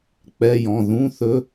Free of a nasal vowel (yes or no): no